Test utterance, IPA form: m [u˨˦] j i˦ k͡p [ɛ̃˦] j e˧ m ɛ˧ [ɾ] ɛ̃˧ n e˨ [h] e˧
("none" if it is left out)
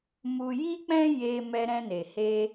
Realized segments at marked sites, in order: u˧, ɛ̃˦, ɾ, h

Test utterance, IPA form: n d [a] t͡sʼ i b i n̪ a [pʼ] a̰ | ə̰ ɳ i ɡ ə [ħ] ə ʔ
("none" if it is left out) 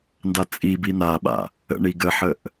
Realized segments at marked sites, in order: a, ɓ, ħ

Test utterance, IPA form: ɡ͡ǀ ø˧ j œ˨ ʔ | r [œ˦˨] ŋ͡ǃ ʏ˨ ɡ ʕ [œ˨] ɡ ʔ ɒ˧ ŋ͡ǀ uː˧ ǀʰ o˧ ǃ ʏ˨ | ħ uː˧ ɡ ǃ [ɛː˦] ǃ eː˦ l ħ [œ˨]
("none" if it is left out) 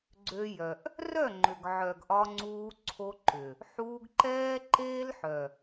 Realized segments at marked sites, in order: œ˦˨, œ˨, ɛː˦, œ˨

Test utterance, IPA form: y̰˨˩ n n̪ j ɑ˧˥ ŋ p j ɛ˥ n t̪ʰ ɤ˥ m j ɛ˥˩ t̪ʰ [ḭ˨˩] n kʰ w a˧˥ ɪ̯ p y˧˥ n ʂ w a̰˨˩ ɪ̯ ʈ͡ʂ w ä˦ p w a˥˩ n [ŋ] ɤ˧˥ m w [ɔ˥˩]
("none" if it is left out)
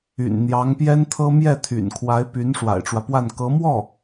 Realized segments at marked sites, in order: y̰˨˩, k, ɔ˥˩

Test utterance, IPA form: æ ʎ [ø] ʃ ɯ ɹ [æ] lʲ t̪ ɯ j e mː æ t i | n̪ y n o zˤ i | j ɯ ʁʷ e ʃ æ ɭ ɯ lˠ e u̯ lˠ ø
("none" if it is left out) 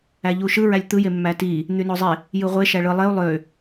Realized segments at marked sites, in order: u, æ

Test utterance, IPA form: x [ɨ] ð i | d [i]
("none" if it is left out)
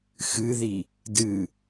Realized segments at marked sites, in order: ɨ, ɨ

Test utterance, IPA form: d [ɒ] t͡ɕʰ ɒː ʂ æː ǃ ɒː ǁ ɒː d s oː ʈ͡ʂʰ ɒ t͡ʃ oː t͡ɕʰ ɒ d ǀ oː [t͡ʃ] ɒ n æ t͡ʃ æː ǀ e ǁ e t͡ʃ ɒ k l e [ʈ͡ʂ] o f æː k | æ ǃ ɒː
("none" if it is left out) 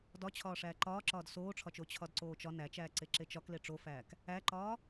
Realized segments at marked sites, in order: ɒ, t͡ʃ, ʈ͡ʂ

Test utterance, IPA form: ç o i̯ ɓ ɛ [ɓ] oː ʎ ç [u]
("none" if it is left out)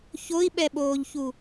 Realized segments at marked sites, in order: ɓ, u

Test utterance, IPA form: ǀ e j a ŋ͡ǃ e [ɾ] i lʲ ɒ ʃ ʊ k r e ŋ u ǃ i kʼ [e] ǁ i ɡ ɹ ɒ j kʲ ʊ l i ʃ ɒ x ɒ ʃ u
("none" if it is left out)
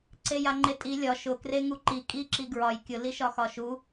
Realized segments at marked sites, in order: tʼ, i

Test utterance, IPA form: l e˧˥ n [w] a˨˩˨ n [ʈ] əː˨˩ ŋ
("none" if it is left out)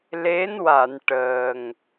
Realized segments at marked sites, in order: w, ʈ

